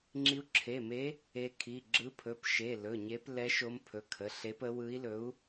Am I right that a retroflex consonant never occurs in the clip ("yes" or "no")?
yes